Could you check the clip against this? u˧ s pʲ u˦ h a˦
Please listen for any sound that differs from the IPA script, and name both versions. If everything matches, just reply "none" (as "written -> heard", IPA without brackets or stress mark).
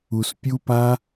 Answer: h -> p